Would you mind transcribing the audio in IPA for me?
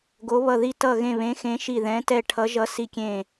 ɡ o˧˥ β ʌ˦˨ ð i˦˨ t ʌ˦˨ ɣ ẽ˦˨ β ẽ˧˥ x ẽ˧˥ ʃ i˦˨ ð ɛ̃˧˥ t ɛ˦˨ ʈʰ ʌ˧˥ ʒ ʌ˧˥ s i˦˨ kʲ ẽ˦˨

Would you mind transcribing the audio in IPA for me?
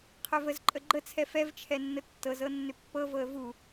qʰ œ v ə z ǃʼ ə ɡ͡ǃ ə t͡sʰ ɛ f ɛ v t͡ʃʰ ɛ nː ə tː ɤ z ɤ nː ʏ pː ɤ v ɤ ə̯ v u

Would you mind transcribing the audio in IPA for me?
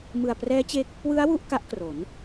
m ɯ˨˩ a̯ p r ɛː˦˥ t͡ɕ e˦˥ k̚ | w ɯ˦˥ a̯ w u˥˩ ʔ k a˦˥ ʔ k r o˩˦ n

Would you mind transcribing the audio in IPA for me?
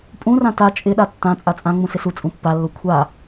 pʼ ũ r ã t a t͡ʃʼ ɪ ɗ a tː ã t͡sʼ a t͡sʼ ã ŋ͡m ũ s ɪ s u t͡sʼ ũ pː a lː o kʷʰ a

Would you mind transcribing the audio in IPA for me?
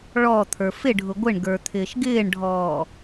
ɭ ɔ t̪ʰ ə˞ f ɪ ɖʱ ʊ ɡʷ ɪ ɳ ɡ ə˞ t̪ʰ ɪː ʃ ɡ ɪː ɳ ɖʱ ɔː

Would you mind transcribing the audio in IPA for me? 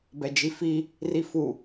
b ɛ d͡ʒ i f i | r i f u

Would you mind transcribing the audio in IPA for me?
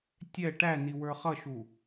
tʲ ɛ ʈ æ n i w ə˞ χ ʌ ʃ u

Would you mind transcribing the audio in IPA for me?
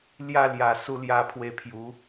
l j a˧ l j a˨˩ s u˧ l j a˧ pʰ w e˧ pʰ j u˨˦

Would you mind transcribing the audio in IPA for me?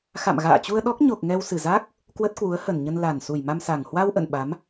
x a̰˧˨ m ɣ a̰ː˧˨ t͡ɕ u˧ ə̯ ɗ ɔ˦˥ k̚ ɲ o˨˩ k̚ ŋ ɛ˧ w s ɨ˨˩ z a˦˥ k̚ | k w ə˦˥ t̚ k w u˨˦ ə̯ h ə˨˩ n ɲ ə˧ n l a˨˩ n s u˨˩ j m a˧ m s a˨˩ ŋ h w a˧ w ʔ ə̰˧˨ n ɓ a˨˦ m

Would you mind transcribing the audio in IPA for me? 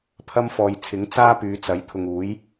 pʰ ɐ˥ m f ɔː˨ j t͡sʰ ɪ˨˥ ŋ t͡s aː˥ p yː˨˧ t͡s ɐ˨˥ j t̪ʰ ʊ˨ ŋ uː˨˥ j

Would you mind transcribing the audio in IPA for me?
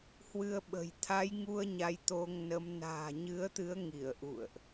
h w ɨ˧ ə̯ ɓ ə̤˨˩ j t̪ʰ a˨˦ j ŋ u˧ ə̯ ɲ a˧ j t̪ o˧ ŋ n ə˨˦ m n a̤ː˨˩ ɲ ɨ˨˦ ə̯ t̪ ɨ˨˦ ə̯ ŋ i˧˩ ə̯ ʔ ṵ˧˨ ə̯ ʔ

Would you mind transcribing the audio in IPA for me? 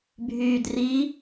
bʱ yː d r i

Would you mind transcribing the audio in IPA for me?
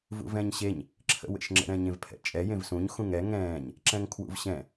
v ṵ v ɛ̃ ɲ ɕ e ɲ | ǁʰ ə̰ w ḛ ʃ ŋ͡ǁ ə̰ ɾ ɛ̃ ɲ ẽ v pʰ ɛ̰ t͡ʃʼ ɛ j ẽ v s ũ ɲ x ũ ŋ ɛ ŋ ɛ̃ː ɲ | ǁ ɛ̃ ŋ kʰ w ṵ v ɕ ɛ̃

